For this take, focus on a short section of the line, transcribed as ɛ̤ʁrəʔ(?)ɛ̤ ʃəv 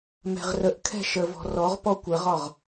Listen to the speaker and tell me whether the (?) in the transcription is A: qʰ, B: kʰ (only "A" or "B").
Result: B